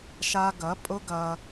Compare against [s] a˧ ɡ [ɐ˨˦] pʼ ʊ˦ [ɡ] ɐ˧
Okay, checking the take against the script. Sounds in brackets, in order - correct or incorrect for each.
incorrect, correct, correct

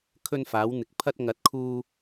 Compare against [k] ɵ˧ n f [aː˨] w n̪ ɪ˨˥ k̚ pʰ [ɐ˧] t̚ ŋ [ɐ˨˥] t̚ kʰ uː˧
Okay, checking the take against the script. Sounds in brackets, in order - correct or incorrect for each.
incorrect, incorrect, correct, correct

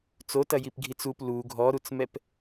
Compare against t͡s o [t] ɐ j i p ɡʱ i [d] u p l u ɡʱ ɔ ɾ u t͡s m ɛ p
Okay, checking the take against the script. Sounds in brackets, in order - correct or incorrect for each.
correct, incorrect

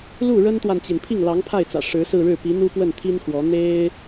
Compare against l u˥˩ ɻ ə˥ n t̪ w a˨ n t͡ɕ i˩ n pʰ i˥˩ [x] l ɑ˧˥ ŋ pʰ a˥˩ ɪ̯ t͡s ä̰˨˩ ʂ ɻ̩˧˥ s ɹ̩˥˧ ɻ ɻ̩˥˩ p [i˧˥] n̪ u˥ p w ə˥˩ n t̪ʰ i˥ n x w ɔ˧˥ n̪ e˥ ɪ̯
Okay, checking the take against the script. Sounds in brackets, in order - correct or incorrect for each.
incorrect, correct

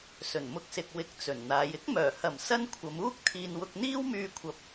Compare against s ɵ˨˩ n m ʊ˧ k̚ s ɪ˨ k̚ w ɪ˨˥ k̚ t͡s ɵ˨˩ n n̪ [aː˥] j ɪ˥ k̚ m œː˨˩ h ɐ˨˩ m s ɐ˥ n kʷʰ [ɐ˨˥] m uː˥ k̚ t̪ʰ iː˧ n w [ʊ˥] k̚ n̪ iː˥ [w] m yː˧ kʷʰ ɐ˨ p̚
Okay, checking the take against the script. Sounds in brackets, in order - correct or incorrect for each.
incorrect, incorrect, incorrect, correct

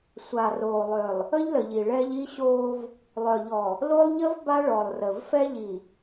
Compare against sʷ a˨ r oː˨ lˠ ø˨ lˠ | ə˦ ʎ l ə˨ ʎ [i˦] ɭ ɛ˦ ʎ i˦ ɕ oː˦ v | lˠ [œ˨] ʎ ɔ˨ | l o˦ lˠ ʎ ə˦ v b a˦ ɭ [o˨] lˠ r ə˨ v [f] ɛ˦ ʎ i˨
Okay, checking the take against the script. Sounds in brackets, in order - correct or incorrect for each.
incorrect, correct, incorrect, correct

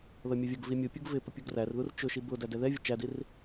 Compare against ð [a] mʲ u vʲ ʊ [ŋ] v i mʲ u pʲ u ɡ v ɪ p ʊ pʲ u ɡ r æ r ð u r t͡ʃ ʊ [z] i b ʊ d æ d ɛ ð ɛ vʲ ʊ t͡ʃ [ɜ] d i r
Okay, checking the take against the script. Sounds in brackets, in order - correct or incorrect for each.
incorrect, incorrect, incorrect, incorrect

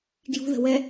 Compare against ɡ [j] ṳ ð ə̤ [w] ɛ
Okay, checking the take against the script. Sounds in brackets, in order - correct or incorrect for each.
correct, correct

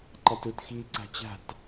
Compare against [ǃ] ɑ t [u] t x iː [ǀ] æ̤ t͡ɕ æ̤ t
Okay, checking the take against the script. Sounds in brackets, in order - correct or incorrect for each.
correct, correct, correct

